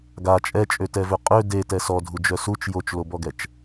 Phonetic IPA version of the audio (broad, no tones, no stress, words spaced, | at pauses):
ɡa t͡ʃʼɛt͡ʃʼøtɛvø qʼø detɛ sɔdʱud͡ʒœ sut͡ʃ jot͡ʃlobɔɡɛt͡ʃ